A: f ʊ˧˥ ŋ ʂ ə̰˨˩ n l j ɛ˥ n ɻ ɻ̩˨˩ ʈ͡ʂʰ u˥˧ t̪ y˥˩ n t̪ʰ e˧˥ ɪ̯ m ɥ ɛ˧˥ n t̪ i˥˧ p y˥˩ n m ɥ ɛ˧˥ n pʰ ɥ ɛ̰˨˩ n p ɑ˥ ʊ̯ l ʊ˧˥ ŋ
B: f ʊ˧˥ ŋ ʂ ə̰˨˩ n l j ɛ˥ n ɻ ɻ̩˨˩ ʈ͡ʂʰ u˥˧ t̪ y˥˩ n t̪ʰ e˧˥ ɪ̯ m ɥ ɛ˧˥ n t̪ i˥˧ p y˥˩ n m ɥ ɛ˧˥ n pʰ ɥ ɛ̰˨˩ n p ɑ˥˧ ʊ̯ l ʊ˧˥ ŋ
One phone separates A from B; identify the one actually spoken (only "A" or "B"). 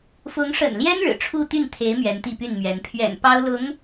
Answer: A